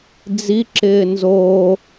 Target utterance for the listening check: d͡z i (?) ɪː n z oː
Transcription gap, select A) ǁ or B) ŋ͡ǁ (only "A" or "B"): A